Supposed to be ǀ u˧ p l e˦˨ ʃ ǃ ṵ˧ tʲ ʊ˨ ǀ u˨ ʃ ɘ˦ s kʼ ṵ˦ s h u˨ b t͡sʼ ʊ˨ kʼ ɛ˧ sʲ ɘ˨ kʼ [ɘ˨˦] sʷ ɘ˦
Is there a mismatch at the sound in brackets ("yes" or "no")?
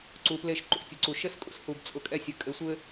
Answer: no